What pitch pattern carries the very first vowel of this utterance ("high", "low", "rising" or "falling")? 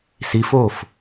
rising